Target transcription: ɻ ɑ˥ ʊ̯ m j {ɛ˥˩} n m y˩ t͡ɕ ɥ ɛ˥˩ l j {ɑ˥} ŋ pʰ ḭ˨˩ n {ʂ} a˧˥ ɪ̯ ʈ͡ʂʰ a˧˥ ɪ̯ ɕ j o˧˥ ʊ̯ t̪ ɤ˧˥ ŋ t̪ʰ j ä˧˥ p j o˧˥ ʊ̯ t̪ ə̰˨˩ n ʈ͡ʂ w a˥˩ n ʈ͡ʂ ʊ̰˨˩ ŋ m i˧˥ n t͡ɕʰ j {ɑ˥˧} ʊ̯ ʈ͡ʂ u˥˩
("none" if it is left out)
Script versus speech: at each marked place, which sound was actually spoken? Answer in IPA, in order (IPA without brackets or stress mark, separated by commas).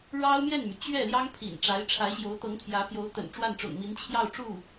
ɛ˥˩, ɑ˥, ʈ͡ʂ, ɑ˥˧